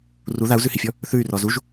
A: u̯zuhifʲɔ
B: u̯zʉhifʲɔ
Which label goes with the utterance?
B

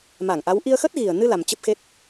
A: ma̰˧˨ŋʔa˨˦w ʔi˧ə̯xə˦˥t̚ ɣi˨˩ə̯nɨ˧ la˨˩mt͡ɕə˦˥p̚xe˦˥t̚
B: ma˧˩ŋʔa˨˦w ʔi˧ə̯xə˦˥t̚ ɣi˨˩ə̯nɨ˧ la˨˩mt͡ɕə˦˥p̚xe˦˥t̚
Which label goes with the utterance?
B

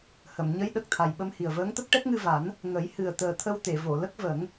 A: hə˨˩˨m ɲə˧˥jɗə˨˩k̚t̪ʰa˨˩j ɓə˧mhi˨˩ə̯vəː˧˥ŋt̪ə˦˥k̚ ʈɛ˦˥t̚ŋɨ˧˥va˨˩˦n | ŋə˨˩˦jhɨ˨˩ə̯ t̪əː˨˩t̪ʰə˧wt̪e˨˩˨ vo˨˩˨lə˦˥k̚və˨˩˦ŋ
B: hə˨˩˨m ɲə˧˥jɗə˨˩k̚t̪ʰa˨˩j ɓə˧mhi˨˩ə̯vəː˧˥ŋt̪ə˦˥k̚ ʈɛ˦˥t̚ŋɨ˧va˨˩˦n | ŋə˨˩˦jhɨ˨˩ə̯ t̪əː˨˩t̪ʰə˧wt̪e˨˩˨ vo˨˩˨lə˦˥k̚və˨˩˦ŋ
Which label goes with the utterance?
B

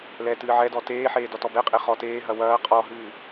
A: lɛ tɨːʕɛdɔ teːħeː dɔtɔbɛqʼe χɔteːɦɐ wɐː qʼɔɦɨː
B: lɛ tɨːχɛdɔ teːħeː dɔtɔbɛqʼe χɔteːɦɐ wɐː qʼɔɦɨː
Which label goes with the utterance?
A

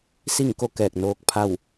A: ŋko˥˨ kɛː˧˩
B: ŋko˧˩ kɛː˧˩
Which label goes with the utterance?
A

